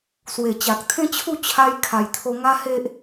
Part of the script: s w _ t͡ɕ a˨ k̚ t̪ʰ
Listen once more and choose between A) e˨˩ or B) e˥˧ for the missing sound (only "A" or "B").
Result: A